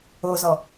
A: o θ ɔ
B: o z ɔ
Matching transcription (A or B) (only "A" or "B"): B